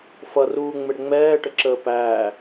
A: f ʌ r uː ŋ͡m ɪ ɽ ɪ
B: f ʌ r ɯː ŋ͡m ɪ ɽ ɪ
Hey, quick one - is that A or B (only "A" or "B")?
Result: A